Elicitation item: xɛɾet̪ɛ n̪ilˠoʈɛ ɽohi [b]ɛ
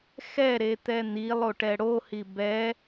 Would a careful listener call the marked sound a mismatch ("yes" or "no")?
no